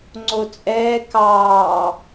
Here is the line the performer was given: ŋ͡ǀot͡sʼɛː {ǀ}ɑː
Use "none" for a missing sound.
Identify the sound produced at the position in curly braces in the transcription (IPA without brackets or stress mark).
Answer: k